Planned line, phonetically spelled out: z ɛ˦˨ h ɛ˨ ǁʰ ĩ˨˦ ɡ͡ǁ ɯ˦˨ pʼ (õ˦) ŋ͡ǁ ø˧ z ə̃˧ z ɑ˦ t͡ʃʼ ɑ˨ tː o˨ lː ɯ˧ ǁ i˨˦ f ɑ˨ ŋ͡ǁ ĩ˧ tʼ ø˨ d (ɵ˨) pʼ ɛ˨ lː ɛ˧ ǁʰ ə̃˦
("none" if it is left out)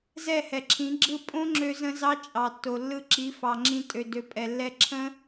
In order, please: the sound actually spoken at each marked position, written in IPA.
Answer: õ˦, ø˨

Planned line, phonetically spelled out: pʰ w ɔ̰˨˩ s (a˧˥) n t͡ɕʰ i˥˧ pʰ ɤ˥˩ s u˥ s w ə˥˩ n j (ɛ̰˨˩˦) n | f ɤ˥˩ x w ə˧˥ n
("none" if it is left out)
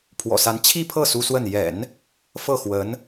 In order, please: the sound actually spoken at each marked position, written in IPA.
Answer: a˧˥, ɛ̰˨˩˦

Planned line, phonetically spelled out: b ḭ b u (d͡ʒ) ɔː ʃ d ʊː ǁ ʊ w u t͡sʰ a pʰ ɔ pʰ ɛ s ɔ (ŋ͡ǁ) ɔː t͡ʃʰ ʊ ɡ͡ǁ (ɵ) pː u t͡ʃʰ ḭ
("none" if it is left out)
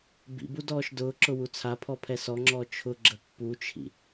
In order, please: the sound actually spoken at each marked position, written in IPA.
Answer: d, ŋ͡ǁ, ə

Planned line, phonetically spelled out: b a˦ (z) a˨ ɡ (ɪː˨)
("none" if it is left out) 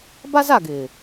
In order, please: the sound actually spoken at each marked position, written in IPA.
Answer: z, ɪː˨

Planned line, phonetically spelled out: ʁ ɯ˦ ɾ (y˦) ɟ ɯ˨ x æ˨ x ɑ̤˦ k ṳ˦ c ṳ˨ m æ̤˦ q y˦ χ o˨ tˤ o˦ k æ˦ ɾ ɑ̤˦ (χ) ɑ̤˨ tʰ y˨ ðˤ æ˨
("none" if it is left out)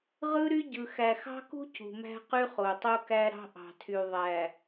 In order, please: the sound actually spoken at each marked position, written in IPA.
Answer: y˦, ʔ

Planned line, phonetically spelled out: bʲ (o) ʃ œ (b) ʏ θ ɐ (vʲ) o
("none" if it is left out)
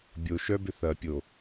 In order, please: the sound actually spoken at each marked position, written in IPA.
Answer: o, b, pʲ

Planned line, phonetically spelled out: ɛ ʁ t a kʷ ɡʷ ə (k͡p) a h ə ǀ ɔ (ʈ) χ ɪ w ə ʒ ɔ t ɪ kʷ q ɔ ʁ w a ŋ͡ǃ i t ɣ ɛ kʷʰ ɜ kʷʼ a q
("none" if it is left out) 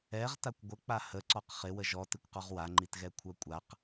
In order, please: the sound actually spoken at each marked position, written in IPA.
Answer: k͡p, q

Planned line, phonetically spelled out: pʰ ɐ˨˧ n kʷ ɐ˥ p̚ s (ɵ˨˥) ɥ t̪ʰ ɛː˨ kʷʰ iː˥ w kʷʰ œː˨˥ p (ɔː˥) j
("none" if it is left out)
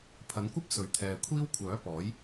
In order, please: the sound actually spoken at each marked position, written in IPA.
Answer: ɵ˨˥, ɔː˨˥

